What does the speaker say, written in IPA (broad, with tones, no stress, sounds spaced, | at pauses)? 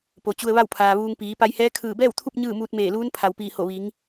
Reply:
p o˩ t͡ɕ u˧ ə̯ ʋ a˥˨ w pʰ aː˩ ʋ uː˧ ŋ p iː˩˧ p a˧ j h ɛː˧˥ kʰ ɯː˧˩ b ɛː˥˨ w t̪ʰ u˥˨ p̚ ɲ ɯː˥˨ m uː˧ t̚ m eː˧˩ l uː˧˥ n pʰ a˩ w p iː˧˩ h o˧˩ ʋ i˩˧ ŋ